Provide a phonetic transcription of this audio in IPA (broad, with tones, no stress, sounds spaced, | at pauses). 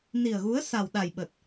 n i˨˩ ə̯ ɣ u˨˦ ə̯ s a˨˩ w ɗ a˨˩ j ɓ ə˨˩ t̚